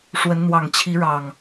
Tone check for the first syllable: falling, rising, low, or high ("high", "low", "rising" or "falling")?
rising